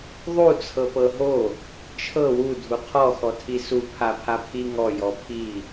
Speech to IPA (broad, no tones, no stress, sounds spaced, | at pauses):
ðˤ u t͡sʰ ɤ p ɤ ɦ o | t͡ʃʰ ɤ w u dʱ u qʰ ɔ x ɔ tʰ i s u pʰ a pʰ a pʰ i ŋ ɔ j ɔ pʰ i